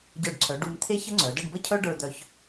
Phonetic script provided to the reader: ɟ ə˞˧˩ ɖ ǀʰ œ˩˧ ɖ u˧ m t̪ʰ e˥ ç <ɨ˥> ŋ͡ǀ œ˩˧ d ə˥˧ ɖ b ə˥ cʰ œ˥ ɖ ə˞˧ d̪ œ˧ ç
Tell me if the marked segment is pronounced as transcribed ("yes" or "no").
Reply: no